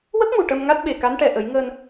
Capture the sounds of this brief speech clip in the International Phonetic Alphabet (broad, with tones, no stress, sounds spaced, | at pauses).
w ə˦˥ k̚ m u˨˩ ʈ ə˧ m ŋ a˦˥ t̚ ɓ e˨˩ k a˧˥ n ʈ ɛ˨˩ ʔ ə˨˩˦ j ŋ əː˧ n